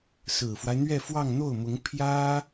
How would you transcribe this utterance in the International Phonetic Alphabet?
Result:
s ɹ̩˨˩ f w a˦ ɪ̯ n̪ ɥ ɛ˥˧ f w ɑ˥˧ ŋ n̪ o˥˩ ʊ̯ m ʊ˧˥ ŋ pʰ j ä˥

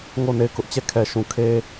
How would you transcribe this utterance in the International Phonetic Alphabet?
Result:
ŋ o˦˨ n e˦˨ ɪ̯ k ʊ˦ ʔ t͡ɕ ɛ˦˨ kʰ ɛ˨ ʃ ũ˨ kʰ e˦

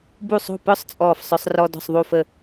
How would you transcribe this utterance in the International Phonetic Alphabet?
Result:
b u˧˩ sˤ o̤˧˩ p œ˧ sˤ t͡sʼ ɔː˧˩ f sˤ œ˧ sˤ r ɔ˧ d ɔ̤˧˩ sˤ ðˤ u˧˩ f ə˧˩

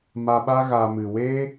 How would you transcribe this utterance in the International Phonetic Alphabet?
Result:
m a˧ ɓ a˦ ɣ a˨ m ɨ˨ w eː˦

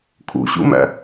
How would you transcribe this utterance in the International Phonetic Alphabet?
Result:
kʰ ṵ ɕ ṵ m æ̰

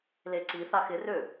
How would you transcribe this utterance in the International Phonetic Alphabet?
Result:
l e ǀ i θ a x ɪ r ø

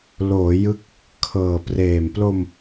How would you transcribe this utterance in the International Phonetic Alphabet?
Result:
l oː˩˦ j ɯ˦˥ k̚ | kʰ ɤː˨˩ p r eː˨˩ m p l o˧ m

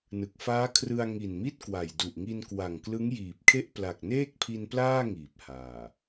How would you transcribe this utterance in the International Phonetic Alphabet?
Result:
n ɯ˨˩ k̚ f aː˦˥ kʰ r ɯ˧ a̯ ŋ i˨˩ n m i˥˩ t̚ k w a˨˩ j d u˨˩ ʔ ŋ i˧ n k w a˨˩ ŋ k l ɯ˦˥ ŋ j iː˨˩ p̚ kʰ e˥˩ ʔ p l a˨˩ k̚ n eː˥˩ k̚ pʰ i˧ n p l aː˥˩ ŋ iː˨˩ p̚ h aː˨˩

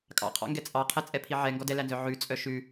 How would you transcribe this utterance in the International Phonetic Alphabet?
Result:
kʼ ɑ̰ qʰ ɑ̰ ŋ ɡ ɛ t͡sʼ ɑ qʰ ɛ t͡sʼ ɛ pʰ i ʕ ɛ ŋ ɡ ɔ d ɛ l æ n z œ ʕ ʉ t͡sʼ œ ʃ ʉ

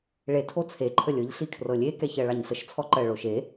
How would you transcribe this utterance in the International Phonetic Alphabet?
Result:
ɭ e tʰ o t͡sʰ e ǃʰ ə lʲ ɤ ʎ ɬ i kʰ r ɤ lʲ e k ɛ ç ɜ ɭ ɑ ɲ s ə ʃ t͡sʰ ɔ ǃ ɜ ɭ o ʃ e

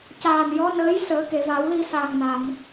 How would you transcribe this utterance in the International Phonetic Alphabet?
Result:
c aː˨˩ n j ɔ˧˥ n əː˧˥ j s əː˨˩˦ k e˨˩˨ v a˨˩˦ w l i˧ s aː˨˩ ŋ n a˨˩˨ m

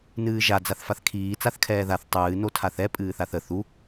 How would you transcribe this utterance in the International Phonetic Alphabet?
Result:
n ɨː ʒ a d͡z a θ f a θ kʰ iː t͡s a θ kʰ ɛː ð a θ tˤ ɨː n o tʰ a θ ɛ pʼ ɨː θ a θ ə θ u

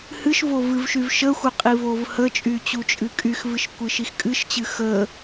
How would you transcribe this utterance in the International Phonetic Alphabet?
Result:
h ɨ ʃ v o v ɨ v ʃ y v ʃ ə xʷ ə qʼ i v o v h ə t͡ʃʼ y t͡ɕ u t͡ʃʼ ɨ kʼ y x v ɨ ʃ kʷ ɨ ʃ i x kʼ ɨ ʃ t͡ɕ ɨ x ə

